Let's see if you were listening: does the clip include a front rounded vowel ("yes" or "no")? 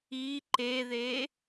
no